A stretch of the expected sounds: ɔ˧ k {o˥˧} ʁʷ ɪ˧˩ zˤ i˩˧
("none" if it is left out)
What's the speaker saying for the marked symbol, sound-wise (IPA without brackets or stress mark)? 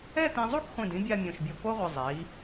o˥